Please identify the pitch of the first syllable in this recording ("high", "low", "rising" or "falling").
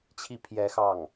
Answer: falling